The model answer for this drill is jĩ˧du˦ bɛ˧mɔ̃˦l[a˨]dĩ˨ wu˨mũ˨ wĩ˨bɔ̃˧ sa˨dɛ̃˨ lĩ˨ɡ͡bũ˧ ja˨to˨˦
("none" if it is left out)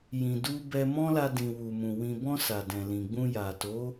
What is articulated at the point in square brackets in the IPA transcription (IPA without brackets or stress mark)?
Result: a˧